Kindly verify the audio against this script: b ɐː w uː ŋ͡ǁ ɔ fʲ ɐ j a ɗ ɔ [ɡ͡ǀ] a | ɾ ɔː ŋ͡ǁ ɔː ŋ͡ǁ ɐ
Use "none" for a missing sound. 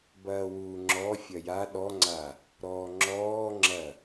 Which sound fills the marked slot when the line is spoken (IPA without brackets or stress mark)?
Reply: ŋ͡ǀ